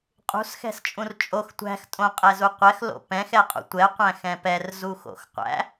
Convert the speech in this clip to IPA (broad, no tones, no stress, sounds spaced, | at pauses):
qʼ ṳ s x ɛ̤ s t͡ʃʼ ũ r t͡ʃʼ o x tʷ æ̤ x tʼ õ qʼ ɛ z u qʷ ɛ x l o̰ p ɛ̃ x ɛ qʼ ṵ tʷ ɛ qʷ æ̃ x ɛ̃ p ɛ r z u x o̰ x qʷ æ̰